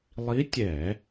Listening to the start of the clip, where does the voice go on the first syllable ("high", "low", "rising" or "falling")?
rising